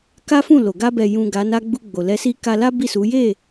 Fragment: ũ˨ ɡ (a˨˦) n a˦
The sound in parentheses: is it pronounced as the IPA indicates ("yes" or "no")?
yes